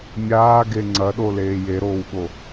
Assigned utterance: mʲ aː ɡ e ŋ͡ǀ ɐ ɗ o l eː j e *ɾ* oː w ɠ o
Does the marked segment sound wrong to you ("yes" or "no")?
no